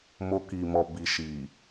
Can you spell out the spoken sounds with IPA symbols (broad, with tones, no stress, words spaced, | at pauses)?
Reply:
mo˧ki˨mɔ˨ bi˨ʃi˨